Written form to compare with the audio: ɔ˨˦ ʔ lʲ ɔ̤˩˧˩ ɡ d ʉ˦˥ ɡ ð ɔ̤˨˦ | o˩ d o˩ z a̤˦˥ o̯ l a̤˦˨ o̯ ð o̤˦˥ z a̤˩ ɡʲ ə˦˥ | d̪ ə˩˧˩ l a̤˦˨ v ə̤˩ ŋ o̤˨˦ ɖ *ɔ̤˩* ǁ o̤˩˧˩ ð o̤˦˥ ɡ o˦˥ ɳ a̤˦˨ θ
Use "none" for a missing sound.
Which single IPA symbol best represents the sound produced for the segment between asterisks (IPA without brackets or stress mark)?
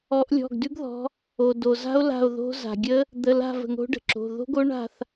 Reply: ə̤˩